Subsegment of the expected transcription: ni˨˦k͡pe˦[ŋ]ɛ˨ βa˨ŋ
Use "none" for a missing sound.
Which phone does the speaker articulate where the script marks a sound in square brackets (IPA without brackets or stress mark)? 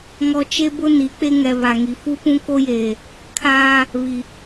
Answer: ŋ